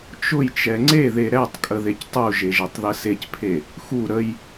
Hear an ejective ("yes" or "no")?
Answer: yes